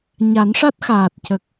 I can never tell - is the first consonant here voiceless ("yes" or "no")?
no